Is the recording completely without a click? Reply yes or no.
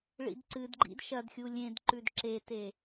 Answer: no